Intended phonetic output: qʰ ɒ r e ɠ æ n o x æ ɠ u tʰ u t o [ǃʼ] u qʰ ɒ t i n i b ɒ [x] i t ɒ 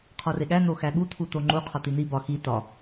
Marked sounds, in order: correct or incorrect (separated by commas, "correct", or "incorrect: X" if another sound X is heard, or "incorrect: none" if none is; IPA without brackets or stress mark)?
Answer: incorrect: ŋ͡ǃ, correct